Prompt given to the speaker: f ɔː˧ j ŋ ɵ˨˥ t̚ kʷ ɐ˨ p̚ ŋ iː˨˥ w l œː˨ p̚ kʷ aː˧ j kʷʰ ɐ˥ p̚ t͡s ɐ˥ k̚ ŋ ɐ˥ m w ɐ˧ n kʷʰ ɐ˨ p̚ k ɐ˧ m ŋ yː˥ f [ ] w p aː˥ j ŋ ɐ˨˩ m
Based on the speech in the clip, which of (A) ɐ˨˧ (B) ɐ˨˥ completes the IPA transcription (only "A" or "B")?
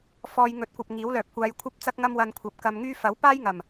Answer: B